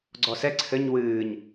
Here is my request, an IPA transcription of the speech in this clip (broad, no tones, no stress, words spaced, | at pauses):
ɡ͡ǀɔsɛ ǀʰɘɲ wɨːɲ